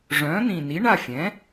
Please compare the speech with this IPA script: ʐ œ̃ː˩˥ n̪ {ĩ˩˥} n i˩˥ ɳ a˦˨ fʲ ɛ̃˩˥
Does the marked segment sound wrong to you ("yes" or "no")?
yes